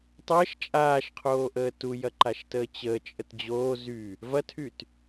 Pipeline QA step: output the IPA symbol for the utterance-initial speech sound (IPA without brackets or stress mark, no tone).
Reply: tˤ